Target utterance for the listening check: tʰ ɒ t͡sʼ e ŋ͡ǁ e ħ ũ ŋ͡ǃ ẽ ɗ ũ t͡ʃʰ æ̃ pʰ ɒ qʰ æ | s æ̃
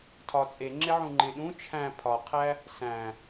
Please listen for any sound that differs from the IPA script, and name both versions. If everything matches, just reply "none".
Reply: ħ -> ʕ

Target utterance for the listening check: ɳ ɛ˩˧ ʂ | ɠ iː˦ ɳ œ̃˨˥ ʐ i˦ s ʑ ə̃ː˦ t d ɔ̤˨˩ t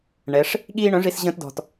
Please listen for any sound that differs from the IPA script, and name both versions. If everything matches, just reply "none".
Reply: none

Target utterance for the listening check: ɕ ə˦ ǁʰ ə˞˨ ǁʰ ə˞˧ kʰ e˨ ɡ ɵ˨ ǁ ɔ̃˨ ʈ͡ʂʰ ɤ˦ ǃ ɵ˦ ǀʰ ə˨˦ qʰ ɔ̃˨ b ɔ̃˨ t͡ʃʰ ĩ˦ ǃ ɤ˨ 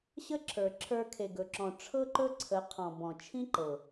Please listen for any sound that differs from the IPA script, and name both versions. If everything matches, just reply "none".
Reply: none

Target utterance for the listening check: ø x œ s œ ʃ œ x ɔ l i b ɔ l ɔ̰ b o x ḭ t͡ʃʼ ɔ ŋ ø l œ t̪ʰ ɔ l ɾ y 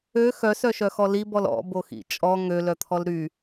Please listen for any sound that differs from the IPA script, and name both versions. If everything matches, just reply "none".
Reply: none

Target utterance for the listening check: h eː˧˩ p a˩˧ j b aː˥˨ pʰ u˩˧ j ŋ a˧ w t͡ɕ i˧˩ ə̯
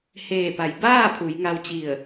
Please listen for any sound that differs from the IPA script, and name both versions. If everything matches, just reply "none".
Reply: none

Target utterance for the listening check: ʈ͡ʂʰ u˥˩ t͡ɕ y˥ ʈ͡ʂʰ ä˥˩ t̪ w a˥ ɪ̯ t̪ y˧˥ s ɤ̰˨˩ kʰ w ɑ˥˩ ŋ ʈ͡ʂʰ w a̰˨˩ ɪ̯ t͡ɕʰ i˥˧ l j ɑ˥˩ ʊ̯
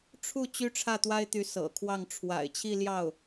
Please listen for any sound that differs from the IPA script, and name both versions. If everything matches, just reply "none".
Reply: none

